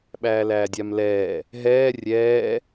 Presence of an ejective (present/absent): absent